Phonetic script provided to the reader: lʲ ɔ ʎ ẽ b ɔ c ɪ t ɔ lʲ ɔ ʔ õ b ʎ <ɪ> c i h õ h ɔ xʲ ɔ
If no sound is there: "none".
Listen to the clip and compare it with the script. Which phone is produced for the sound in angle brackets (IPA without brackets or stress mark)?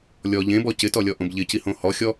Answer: ɪ